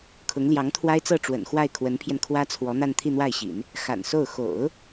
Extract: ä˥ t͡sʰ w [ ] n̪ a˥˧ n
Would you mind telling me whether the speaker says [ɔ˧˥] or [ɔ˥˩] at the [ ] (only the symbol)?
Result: ɔ˧˥